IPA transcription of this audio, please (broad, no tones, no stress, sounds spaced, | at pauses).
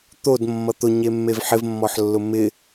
t̪ o d mː ʌ t̪ ʊ ɲ e mː e v ħ ɪ v mː ɔ ħ lː ʊ m ɪ